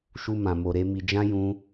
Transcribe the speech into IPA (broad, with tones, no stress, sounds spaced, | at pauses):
ʃ u˦ m ã˧ m o˧ ɾ e˦ m i˧ d͡ʒ ã˦ j ũ˦